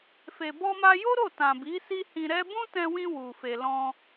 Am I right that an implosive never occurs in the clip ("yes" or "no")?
yes